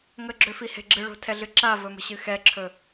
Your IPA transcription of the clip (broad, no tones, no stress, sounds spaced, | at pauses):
ŋ ə ɡ͡ǁ ø f i h e̤ ɡ͡ǁ ɨ ɭ o̤ tʰ ɛ ɮ ɨ ǁ a v ɵ m ə̤ ɕ ɨ x ɛ ǁʰ ɵ